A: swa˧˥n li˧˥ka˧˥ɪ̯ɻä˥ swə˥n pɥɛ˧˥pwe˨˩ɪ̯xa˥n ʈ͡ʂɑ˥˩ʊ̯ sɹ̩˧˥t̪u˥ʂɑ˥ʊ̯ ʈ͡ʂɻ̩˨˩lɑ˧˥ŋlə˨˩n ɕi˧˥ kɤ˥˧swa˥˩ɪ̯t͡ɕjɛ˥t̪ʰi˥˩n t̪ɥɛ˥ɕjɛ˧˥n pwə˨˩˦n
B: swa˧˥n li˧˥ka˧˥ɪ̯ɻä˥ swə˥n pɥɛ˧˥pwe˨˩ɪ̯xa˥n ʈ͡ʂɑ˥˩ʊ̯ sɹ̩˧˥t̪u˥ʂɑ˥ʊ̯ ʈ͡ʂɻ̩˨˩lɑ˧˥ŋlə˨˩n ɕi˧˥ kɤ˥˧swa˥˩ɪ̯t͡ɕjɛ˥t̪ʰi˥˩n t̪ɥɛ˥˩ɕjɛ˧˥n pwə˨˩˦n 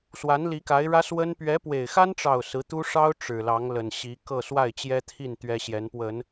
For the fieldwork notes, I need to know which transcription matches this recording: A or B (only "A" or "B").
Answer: A